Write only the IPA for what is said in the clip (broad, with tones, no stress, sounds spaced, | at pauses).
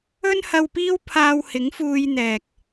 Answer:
ɵ˥ n h ɐ˧ w p iː˥ w pʰ aː˧ w h ɪ˨˥ ŋ f uː˧ j n̪ ɛː˨ k̚